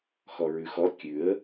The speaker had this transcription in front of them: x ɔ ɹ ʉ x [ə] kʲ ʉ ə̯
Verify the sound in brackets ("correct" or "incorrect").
incorrect